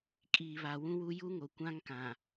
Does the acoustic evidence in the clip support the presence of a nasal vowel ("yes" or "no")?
yes